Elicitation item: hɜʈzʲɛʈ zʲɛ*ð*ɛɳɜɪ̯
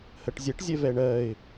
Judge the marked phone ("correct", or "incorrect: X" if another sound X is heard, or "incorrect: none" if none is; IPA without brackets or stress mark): incorrect: v